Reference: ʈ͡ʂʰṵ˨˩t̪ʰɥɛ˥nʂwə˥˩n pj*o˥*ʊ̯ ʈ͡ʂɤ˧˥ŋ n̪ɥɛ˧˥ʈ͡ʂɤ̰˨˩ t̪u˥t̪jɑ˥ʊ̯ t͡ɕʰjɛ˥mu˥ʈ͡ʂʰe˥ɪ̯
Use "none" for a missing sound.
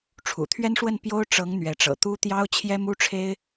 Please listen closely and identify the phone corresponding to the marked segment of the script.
o˥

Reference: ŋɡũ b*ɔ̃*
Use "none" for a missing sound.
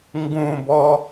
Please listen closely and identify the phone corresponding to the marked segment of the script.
ɔ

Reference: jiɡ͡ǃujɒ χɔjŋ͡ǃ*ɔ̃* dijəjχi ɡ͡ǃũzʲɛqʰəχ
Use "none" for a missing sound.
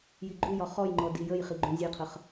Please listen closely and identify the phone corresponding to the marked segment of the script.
ɔ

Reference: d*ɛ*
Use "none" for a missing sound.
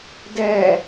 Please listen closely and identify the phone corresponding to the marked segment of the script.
ɛ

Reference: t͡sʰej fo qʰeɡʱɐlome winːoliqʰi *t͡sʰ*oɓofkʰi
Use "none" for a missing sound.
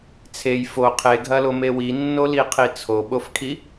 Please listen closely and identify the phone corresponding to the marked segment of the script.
t͡sʰ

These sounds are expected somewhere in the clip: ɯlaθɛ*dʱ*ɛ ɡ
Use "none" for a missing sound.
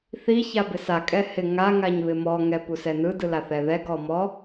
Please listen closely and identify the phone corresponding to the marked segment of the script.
ð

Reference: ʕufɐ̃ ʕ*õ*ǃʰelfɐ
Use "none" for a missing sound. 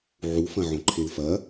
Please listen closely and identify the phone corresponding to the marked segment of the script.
õ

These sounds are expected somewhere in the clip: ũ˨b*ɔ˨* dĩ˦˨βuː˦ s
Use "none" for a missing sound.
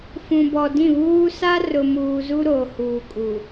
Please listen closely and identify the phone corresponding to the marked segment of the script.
ɔ˨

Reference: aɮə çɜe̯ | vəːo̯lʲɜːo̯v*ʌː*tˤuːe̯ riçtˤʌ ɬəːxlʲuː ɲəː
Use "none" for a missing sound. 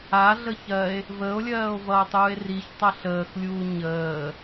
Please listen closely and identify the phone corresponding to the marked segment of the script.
ʌː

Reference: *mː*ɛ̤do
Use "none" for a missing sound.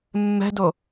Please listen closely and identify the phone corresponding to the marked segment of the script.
mː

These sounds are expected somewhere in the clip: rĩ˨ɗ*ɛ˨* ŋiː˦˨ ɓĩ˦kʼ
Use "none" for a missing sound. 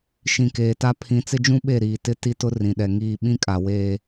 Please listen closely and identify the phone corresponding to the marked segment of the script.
ɛ˨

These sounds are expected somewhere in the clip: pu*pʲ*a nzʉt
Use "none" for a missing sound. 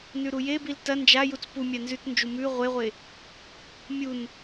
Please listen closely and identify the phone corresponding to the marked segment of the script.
mʲ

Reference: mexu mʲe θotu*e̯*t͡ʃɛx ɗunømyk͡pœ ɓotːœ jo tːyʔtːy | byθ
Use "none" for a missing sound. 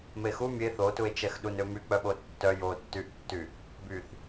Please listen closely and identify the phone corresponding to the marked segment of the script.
e̯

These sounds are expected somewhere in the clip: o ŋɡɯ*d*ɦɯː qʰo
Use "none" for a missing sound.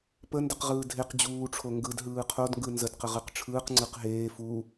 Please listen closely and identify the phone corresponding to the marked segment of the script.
d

